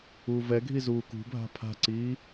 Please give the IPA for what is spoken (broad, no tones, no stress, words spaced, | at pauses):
uːvɛɡʱi zuːkṳbʱa̤ pʰa̤ǀiː